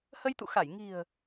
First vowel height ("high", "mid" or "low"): mid